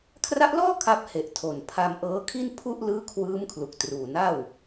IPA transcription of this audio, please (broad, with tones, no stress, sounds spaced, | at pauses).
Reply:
kʰ r a˦˥ ʔ l ɔː˥˩ kʰ a˦˥ p̚ h e˨˩ ʔ tʰ o˨˩ n pʰ a˧ m ʔ ɤː˦˥ kʰ i˥˩ n pʰ u˥˩ ʔ l ɯː˦˥ kʰ w ɯː˦˥ m kʰ l u˨˩ k̚ t r uː˨˩ n a˥˩ w